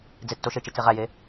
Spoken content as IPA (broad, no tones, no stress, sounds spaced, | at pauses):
d͡z e tː o ʃ e t͡ʃ i t͡s e ʁ æ j e